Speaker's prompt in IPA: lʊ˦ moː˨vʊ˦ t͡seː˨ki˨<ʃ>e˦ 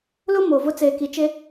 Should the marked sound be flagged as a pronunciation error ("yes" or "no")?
yes